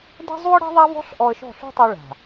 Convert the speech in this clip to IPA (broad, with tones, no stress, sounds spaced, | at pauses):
d ɛ̤˦ zˤ u˦ ə̯ ɽ ɛ̤˦ ðˤ a˦ v ɔ̤˦ ɬ ʔ ɔ˧ ə̯ ʃ ɔ̤˦˨ ɬ ṳ˦ tˤ i˧ ɭ a̤˨